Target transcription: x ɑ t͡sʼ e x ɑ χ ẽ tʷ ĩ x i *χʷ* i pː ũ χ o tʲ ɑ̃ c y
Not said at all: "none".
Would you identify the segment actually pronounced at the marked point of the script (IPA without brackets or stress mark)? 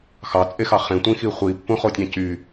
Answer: χʷ